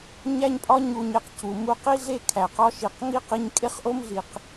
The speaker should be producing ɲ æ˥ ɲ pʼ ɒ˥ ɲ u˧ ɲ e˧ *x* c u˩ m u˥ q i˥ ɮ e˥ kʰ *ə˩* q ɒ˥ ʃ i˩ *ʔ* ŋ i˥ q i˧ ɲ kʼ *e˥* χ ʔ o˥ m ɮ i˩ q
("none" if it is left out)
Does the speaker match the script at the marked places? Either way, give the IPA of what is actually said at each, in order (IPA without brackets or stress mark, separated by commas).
q, æ˩, q, e˥